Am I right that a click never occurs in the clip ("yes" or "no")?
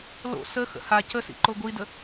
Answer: no